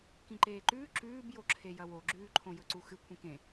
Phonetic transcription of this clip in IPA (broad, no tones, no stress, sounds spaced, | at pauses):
k ĩ ǃ eː ǃ ʉː ǁ ʉː b j o ǁʰ e j ɐ w o ɡ͡ǁ ʉː ǃʰ õ j ɵ ǀ u x ɨ kʷʰ ĩ k ẽ